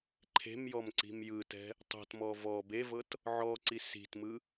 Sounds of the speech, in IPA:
ǃʰ e̤ m j ɔ m ǀ i̤ m j ɯ t ɛ̤ | tˤ o̤ t m ɔ v ɔ b e v ɤ t | ʕ ɔ ǀ i s i̤ t m ɯ

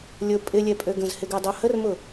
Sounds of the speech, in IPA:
lʲ ʊ pʼ ɪ lʲ ɛ pʼ ø ɡ ə̃ z h ɪ ɡ œ dˤ o h ə r m ʊ

